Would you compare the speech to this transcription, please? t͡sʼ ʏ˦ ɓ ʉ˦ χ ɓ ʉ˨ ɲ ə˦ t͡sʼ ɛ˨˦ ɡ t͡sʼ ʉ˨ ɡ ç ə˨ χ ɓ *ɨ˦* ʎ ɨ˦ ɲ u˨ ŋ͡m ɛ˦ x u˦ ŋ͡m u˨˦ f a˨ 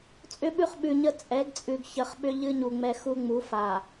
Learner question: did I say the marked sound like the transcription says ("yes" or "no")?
no